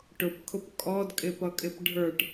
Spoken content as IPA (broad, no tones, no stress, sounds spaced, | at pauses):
ʈ ʊ p kʰ ʊ p kʼ ɔ d kʼ ɪ p ʌ kʼ ɪ p ɖʱ ə˞ ʈ